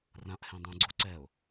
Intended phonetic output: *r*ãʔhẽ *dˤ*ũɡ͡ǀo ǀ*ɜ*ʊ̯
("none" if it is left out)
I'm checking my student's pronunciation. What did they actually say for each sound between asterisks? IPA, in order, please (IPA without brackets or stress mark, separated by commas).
r, dˤ, ɛ